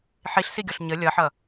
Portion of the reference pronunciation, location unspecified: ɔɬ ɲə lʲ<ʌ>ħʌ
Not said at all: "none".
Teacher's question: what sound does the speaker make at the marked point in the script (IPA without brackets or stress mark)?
ʌ